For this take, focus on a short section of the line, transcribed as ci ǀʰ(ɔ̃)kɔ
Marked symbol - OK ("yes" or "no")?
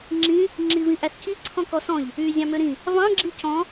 yes